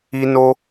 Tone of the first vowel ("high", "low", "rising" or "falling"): high